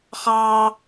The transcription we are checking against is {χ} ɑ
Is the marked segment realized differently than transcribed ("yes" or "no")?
no